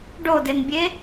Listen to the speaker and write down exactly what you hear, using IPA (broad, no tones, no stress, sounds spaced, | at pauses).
ɖ o d e n bʲ e